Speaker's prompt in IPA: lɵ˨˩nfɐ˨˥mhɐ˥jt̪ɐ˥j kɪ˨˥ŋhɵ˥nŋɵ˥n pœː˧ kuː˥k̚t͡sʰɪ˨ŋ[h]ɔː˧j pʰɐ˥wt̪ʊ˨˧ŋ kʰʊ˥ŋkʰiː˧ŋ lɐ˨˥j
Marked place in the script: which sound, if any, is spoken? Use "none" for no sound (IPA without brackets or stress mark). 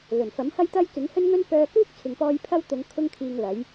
p